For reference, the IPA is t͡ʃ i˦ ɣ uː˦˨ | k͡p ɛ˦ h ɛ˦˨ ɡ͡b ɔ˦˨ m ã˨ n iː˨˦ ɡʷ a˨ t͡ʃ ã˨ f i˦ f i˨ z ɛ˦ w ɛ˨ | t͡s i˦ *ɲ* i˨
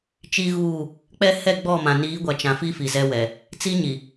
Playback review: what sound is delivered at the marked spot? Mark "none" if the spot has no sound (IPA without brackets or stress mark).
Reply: ɲ